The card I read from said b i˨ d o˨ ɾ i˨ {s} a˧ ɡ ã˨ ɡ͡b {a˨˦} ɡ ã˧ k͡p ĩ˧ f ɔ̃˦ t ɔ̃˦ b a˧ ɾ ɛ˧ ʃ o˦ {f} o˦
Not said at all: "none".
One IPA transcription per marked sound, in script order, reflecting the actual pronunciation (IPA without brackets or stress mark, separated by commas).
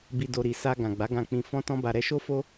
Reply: s, a˨˦, f